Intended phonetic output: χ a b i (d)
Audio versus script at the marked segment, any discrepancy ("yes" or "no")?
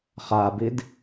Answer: no